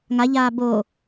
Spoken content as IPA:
ŋ a ʎ aː b o

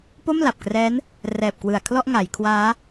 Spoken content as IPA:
p o˥˩ m l a˨˩ p̚ k r ɛː˦˥ n | r ɛː˨˩ p̚ k w ɯ˨˩ a̯ kʰ l ɔ˥˩ ʔ ŋ a˩˦ j kʰ w aː˦˥

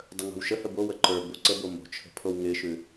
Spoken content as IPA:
dˤ ə ŋ o̤ w ʃ ə h ə b o w ə ǃ ə˞ b o ǀ ə b o m o̤ t͡ʃʰ ə̤ pʰ o w ŋ ɪ ʃ ʉ

